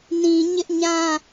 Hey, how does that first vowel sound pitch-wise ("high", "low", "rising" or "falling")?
low